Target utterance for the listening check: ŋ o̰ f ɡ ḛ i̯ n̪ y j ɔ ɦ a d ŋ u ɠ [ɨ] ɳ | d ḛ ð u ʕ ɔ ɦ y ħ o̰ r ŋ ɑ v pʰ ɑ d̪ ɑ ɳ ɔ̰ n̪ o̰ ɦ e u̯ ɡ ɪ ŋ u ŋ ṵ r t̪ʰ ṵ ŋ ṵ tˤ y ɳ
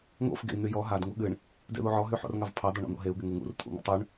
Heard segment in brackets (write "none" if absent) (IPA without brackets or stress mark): ɨ